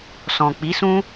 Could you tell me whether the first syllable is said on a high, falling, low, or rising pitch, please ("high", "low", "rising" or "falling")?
low